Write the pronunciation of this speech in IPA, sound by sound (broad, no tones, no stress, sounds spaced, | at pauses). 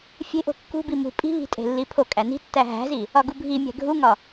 fʲ e̤ ʔ o̤ kː ṳ b i m ṳ pʼ i̤ β i̤ tʼ e̤ lː i pʰ o kʼ æ n i̤ tː æ ɦ æ̤ z i | ɒ ɡ u bʱ i mʲ æ̤ ɡʱ u ŋ ɒ